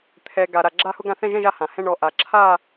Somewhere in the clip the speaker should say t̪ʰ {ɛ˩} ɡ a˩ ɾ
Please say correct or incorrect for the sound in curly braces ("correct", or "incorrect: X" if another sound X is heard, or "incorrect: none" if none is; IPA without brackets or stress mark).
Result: correct